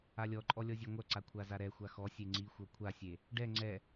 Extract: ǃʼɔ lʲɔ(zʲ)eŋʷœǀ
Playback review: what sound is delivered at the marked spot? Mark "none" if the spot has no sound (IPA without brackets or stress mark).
zʲ